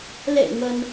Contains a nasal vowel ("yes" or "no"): no